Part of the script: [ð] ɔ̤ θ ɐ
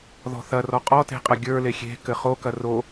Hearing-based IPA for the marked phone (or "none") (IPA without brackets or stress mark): ð